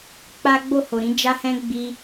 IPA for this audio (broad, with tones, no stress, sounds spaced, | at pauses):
k͡p a˦ ɡ͡b o˦˨ h o˨ ɾ ĩ˨˦ d͡ʒ a˦ h ɛ̃˦ ɡ͡b i˧